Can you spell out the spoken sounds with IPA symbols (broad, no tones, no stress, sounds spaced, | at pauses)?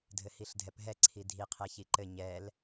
dʱ ɘ h i ɬ dʱ ɛ p ɦ ɛ ǀʰ i dʱ i qʰ ɛ ç i ǃ ɘ ɲ ɛ l